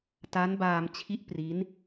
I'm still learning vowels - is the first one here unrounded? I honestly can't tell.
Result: yes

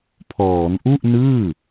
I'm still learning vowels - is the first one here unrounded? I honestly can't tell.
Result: no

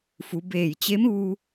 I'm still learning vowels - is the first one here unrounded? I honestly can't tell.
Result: no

